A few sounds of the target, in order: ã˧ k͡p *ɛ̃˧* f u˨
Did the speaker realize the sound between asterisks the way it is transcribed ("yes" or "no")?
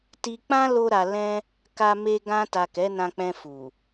yes